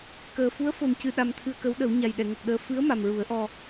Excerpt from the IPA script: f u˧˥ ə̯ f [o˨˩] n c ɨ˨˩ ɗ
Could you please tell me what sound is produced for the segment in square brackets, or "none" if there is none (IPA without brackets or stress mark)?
o˨˩